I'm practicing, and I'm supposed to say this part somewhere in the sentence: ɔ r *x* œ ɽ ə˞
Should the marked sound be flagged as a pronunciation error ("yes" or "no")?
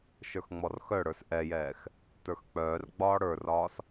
no